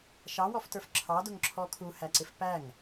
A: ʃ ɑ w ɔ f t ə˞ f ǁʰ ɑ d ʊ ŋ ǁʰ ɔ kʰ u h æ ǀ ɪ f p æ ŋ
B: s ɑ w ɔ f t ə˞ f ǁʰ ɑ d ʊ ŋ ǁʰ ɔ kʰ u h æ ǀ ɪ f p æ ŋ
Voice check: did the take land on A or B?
A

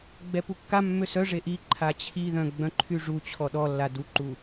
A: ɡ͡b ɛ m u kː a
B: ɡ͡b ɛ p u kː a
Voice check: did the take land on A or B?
B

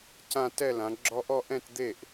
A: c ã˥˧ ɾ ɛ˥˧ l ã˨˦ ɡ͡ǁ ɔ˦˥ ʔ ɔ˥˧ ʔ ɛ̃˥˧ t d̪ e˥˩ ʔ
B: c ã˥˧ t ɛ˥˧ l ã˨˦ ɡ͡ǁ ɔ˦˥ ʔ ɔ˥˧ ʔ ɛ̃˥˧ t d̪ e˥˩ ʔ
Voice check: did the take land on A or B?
B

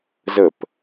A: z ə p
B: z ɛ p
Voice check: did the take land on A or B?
A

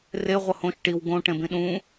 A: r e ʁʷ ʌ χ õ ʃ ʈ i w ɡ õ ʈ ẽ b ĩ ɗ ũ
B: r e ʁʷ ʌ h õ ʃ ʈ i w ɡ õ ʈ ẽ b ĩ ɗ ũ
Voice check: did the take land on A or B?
B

